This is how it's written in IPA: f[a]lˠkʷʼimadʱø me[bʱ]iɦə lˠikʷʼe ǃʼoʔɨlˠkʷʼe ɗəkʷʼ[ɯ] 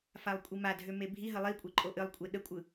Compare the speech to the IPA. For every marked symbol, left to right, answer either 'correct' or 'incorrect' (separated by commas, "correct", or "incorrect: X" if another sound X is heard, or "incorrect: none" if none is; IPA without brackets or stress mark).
correct, correct, correct